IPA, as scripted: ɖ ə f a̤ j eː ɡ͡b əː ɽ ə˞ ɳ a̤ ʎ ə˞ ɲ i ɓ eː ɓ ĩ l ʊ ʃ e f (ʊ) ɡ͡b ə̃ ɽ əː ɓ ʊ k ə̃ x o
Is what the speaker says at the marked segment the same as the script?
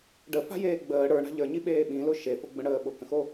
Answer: yes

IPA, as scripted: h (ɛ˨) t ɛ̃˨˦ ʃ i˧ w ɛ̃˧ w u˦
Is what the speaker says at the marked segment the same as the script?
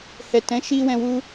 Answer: yes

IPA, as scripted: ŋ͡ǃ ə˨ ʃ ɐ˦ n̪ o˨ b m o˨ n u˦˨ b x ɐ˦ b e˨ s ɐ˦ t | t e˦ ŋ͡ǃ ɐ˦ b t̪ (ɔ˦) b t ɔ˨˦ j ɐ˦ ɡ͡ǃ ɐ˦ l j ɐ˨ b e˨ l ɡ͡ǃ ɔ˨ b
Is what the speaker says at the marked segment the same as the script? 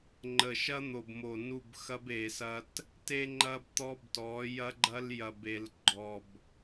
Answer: yes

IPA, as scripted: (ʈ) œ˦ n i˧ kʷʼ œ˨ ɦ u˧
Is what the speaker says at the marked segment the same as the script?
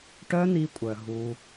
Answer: yes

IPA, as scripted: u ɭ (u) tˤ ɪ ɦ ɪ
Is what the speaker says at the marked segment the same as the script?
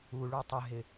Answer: yes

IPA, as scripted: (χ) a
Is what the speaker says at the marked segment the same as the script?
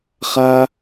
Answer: yes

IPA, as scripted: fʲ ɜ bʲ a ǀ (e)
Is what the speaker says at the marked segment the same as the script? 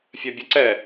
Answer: no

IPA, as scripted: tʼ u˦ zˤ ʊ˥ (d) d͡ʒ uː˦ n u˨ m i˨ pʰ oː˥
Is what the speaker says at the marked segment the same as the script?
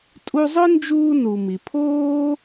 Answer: no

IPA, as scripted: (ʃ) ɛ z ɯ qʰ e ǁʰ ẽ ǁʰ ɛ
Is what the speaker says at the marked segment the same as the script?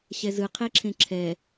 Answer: no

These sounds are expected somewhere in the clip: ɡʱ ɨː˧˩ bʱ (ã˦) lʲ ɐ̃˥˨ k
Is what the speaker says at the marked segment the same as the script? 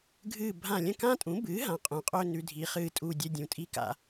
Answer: no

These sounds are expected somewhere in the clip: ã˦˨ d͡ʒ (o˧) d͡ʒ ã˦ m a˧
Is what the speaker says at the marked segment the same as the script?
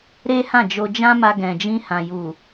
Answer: yes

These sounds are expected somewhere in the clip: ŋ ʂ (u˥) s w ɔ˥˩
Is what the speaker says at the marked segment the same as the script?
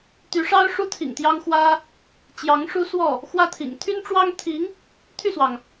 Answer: yes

